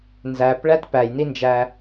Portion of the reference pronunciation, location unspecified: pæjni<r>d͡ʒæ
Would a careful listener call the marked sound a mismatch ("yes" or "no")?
yes